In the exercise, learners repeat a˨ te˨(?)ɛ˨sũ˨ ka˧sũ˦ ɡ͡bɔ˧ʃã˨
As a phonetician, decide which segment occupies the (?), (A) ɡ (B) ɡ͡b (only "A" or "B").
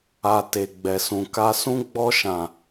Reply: B